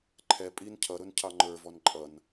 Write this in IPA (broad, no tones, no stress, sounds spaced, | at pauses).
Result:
ǃʰ ɛ pʼ i n cʰ ʌ ɾ ʊ n cʰ ɑ ŋ͡ǃ ə˞ v ɔ n ǃʼ ʌ n